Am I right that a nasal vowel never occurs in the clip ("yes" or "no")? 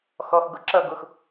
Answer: yes